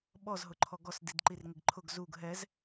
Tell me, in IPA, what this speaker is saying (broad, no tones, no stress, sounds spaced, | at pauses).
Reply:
ɓ ɔ z ɦ ʊ ǃʰ ɔ ɡ ɔ s d i d ǃ i r ŋ ɪ ɡ ǃʰ ʊ ɡ z u ɡ ɦ ɛ z